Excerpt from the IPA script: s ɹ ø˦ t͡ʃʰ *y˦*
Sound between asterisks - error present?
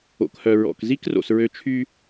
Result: no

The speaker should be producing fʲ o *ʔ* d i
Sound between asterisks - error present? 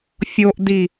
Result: no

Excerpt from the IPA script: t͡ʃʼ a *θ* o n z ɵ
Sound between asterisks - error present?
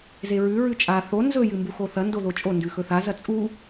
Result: no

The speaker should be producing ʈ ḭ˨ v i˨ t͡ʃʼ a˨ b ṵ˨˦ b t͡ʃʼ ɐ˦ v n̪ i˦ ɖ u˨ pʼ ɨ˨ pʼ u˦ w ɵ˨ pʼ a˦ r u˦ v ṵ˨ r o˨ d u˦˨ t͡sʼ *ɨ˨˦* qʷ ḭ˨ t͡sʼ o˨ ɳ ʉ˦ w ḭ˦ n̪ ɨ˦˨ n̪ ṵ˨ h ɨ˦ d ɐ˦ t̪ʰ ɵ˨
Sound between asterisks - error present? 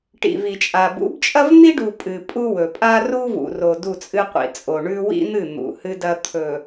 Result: yes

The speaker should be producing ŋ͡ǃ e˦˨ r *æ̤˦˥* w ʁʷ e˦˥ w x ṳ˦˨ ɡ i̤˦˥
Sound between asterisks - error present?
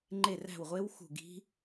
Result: yes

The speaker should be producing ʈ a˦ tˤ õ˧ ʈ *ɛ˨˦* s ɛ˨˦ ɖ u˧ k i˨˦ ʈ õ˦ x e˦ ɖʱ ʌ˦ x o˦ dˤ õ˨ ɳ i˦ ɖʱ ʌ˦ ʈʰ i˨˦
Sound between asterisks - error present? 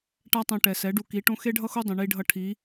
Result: yes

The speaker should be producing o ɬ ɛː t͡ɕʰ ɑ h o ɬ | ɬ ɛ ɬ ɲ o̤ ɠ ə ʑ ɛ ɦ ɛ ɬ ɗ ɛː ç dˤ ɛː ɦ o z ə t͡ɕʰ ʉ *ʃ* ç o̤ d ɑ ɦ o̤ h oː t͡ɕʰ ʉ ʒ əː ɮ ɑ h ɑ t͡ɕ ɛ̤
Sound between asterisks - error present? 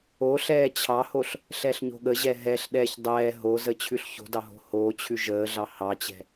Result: yes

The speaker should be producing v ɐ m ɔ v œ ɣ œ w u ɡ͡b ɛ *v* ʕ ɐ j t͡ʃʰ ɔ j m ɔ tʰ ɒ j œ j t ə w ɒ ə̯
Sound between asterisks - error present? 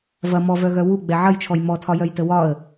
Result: yes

